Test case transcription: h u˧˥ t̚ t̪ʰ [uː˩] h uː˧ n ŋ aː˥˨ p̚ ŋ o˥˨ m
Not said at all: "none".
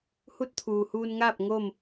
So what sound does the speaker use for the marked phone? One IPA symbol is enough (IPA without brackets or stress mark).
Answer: uː˩